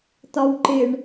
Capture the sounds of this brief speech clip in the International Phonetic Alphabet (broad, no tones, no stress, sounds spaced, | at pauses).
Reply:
t̪ ɒ w ǃ ɪ ɳ